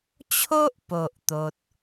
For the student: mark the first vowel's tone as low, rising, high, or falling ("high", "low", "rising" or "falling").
high